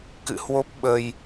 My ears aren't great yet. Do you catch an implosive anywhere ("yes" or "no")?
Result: yes